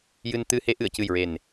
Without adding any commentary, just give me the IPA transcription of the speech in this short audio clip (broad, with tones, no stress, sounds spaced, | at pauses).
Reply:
j ɨ˧ n t̪ ɨ˧ h e˧˥ ʔ ɨ˨˩˨ ə̯ c ɨ˨˩ j ɹ e˨˩ n